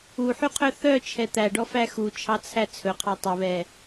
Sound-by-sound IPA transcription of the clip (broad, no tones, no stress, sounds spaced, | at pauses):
u ħ y qʰ œ θ œ t͡ʃʰ ɛ t̪ æ ɖ ɔ f æ x u t͡ʃʰ ɑ t͡sʰ æ t͡sʰ ɵ qʰ ɑ tˤ ɵ β ɛ